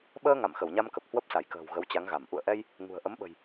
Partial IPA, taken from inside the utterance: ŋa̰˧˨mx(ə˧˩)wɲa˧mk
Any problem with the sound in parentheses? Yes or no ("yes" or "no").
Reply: no